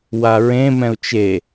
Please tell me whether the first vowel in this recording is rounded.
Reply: no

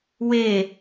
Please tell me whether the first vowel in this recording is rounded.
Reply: no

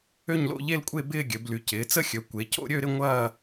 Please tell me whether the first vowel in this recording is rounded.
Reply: yes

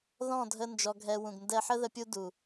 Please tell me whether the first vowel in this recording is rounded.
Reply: yes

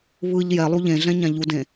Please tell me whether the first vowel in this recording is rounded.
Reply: no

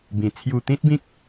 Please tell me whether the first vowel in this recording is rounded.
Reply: no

